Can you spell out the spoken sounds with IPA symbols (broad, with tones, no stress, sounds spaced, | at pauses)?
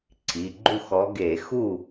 ǀʰ i˩˧˩ ɡ͡ǃ u˥˨ x ɔ˨˦ ɡ e˧˩˧ x u˥˨